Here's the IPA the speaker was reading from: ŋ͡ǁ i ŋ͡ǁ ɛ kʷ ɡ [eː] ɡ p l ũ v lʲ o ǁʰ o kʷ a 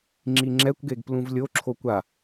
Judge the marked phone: incorrect: e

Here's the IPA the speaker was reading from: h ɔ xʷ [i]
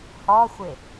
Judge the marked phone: incorrect: ɪ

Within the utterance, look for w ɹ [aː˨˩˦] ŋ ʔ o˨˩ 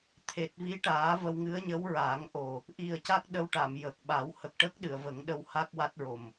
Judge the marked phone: correct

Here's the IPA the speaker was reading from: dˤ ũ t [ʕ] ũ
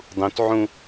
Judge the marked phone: correct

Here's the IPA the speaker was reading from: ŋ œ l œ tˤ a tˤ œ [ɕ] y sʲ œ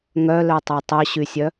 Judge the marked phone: correct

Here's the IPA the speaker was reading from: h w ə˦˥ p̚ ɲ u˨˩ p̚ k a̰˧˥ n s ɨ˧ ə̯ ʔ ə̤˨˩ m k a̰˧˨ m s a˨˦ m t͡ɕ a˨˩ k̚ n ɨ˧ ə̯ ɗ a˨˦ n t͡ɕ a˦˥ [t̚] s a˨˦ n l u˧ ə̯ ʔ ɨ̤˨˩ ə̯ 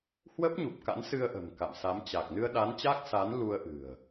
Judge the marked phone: incorrect: k̚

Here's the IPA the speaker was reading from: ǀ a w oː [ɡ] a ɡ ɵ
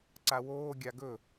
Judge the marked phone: incorrect: ɡʲ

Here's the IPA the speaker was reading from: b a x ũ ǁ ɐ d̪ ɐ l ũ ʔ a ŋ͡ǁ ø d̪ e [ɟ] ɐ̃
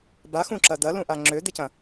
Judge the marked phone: incorrect: c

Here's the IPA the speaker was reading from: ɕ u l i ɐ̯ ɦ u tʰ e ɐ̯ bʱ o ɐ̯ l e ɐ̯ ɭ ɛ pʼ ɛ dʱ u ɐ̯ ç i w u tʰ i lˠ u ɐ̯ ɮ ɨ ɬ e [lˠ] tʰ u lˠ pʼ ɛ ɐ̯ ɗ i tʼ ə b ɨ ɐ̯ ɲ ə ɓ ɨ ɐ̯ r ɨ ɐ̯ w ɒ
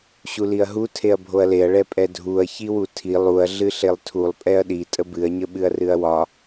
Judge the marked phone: correct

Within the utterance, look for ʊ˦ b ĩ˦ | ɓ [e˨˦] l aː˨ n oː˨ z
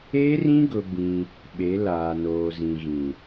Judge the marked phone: correct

